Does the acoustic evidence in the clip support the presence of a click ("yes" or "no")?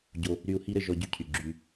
yes